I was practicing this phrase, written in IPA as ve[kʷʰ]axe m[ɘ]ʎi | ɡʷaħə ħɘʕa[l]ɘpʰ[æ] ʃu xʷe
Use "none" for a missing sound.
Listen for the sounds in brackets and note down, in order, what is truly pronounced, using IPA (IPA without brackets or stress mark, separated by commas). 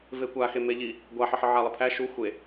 kʷ, e, lˠ, æ